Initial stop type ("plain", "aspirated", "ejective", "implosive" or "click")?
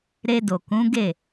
plain